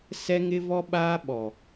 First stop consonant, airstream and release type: implosive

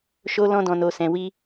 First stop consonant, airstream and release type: plain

